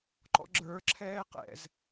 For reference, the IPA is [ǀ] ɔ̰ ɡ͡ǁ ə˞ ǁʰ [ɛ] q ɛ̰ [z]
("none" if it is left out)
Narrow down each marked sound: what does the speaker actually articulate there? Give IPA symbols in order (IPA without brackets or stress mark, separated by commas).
ǃ, ɛː, z